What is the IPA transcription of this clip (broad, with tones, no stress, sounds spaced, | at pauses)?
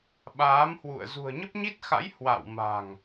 ɓ aː˨˦ m h w ṵ˧˨ ə̯ z ṳ˨˩ ə̯ ɲ ə˦˥ p̚ ɲ i˦˥ t̚ x a̰˧˥ j h w a̰˧˨ w m a̤˨˩ ŋ